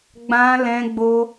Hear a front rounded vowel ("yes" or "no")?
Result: no